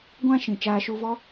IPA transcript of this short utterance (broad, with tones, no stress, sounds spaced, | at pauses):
ɡʷ ã˧ ʃ ĩ˨ t͡ʃ aː˧ ʃ u˧ v ɔ˦